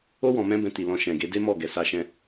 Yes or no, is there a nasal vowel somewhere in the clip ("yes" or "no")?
yes